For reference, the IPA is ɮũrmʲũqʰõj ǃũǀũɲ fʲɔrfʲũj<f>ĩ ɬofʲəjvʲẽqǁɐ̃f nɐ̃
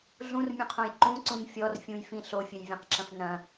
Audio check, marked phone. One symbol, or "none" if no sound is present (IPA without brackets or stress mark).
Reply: f